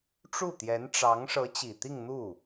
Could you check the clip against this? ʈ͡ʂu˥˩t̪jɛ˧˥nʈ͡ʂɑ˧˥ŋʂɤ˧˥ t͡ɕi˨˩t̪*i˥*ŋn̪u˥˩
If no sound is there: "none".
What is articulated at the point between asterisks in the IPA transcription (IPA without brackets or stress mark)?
i˥˧